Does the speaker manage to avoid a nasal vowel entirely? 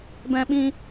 no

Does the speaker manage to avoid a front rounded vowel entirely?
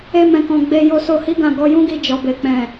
yes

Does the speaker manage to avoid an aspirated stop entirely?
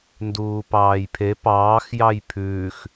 no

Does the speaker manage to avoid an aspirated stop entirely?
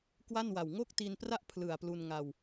no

